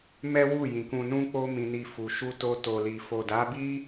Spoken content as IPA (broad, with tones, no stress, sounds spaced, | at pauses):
m ɛ˦ w u˦˨ j ĩ˨ k ũ˧ n ũ˦ k͡p o˦ m ĩ˧ n i˧ f u˨ ʃ u˧ t o˧ t o˨ l i˨ f o˨ d a˨˦ b i˦